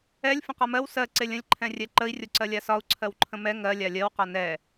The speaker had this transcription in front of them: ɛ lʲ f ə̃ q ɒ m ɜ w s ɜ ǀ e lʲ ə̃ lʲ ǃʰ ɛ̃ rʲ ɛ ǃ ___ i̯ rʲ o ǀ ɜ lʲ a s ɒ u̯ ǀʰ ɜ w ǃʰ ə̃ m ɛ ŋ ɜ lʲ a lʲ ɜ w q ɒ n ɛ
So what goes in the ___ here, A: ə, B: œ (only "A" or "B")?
A